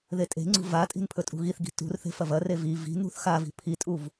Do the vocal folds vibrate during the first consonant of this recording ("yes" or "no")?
yes